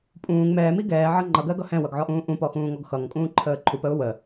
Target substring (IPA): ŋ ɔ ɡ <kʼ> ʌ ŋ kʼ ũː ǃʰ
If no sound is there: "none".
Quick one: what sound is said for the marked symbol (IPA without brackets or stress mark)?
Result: x